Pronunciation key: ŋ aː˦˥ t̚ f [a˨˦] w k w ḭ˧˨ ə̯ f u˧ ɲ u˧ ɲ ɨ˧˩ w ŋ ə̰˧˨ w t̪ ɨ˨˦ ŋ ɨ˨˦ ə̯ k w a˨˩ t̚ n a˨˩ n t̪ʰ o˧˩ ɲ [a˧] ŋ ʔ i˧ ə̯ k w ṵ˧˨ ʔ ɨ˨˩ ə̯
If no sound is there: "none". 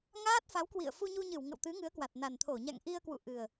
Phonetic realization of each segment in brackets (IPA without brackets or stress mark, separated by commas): a˨˦, a̰˧˨